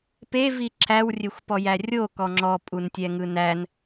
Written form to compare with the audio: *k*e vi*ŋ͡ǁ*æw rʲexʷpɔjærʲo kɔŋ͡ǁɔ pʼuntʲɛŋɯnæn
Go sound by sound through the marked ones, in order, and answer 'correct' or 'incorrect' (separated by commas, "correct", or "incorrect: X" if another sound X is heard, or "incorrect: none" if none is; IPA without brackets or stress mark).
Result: incorrect: p, incorrect: ǁʰ